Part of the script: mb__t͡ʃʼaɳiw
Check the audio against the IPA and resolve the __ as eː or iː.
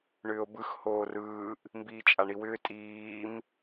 iː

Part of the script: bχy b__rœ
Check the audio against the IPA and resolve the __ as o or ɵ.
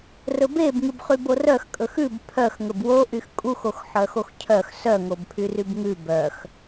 o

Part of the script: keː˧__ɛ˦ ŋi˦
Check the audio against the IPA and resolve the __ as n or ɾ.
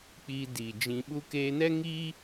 n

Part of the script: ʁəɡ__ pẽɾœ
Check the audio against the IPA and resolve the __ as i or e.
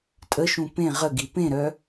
i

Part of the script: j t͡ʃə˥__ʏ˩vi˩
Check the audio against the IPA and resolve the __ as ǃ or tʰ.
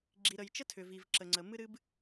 tʰ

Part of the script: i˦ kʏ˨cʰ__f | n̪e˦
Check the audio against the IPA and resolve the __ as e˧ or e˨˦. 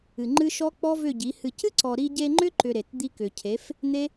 e˨˦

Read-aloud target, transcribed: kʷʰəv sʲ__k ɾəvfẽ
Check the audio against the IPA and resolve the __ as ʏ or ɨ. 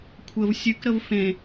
ɨ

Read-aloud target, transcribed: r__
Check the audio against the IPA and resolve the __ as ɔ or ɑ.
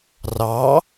ɑ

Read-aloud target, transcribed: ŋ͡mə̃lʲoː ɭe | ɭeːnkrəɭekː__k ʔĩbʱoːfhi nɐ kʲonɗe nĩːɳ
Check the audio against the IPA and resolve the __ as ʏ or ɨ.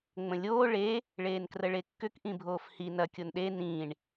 ʏ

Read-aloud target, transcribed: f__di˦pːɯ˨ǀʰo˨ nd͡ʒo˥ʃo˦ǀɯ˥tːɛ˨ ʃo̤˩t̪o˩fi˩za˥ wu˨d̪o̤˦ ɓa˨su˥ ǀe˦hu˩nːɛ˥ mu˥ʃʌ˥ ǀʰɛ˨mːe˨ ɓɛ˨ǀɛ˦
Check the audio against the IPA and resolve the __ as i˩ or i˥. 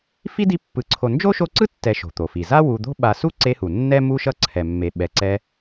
i˥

